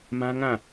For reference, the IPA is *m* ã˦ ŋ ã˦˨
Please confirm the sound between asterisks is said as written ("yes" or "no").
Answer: yes